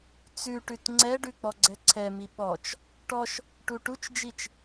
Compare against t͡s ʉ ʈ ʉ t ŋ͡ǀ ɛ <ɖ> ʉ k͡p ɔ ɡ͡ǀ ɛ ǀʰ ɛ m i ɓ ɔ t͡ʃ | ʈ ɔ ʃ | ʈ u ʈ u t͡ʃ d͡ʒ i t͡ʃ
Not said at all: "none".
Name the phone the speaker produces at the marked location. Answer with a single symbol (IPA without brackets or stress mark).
ɖ